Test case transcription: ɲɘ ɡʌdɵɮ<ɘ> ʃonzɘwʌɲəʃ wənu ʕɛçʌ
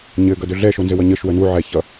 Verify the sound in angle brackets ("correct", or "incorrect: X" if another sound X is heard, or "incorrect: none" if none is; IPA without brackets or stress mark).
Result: incorrect: ɛ